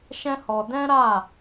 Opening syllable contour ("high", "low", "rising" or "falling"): high